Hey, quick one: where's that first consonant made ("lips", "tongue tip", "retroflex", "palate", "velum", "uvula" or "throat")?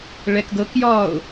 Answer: retroflex